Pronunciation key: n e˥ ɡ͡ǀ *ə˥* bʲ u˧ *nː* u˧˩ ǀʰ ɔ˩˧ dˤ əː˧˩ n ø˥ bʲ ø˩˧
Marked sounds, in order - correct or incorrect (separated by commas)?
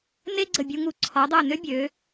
incorrect, incorrect